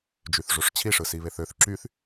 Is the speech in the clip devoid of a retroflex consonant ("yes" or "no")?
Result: no